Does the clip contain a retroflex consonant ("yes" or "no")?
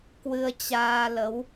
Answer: no